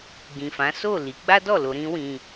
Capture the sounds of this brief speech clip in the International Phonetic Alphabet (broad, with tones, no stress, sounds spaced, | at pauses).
ɡ ĩ˨ f ã˨˦ s o˦˨ l i˨˦ ɡ͡b a˦ d ɔ˦˨ l o˧ ɾ ĩ˦ w ĩ˧